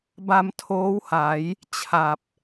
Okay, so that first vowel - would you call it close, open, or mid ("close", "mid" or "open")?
open